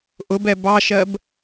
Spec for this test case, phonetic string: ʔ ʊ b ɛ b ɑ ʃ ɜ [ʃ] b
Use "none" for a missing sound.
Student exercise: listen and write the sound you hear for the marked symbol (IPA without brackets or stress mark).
none